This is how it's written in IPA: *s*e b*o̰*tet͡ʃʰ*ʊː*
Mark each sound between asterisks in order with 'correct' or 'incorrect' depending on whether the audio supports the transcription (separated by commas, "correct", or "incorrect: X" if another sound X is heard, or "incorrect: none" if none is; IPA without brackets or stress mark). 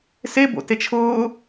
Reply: correct, correct, correct